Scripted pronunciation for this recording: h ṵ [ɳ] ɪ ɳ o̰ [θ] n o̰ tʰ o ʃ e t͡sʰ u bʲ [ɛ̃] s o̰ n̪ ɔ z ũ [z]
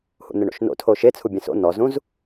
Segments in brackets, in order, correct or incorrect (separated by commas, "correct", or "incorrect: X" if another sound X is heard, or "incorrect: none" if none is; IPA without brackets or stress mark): incorrect: n̪, incorrect: ʃ, correct, correct